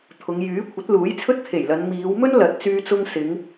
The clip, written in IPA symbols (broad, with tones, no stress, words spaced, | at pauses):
t̪ʰʊ˨˧ŋ jyː˨˥ kʷʰɐ˨˥t̚luː˨˥jt͡sʰɵ˥t̚ kʰe˨˩jlɐ˨˧n miː˨˧wmɵ˥n lɐ˨t̚t͡syː˧t͡sʊ˧ŋ sɪ˨˧ŋ